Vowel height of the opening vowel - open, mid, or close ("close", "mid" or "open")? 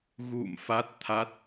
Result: close